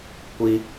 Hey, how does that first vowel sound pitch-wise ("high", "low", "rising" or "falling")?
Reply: high